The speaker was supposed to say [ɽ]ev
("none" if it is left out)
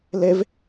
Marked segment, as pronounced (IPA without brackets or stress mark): l